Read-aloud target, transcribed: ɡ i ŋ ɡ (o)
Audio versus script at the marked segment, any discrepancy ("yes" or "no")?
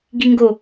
no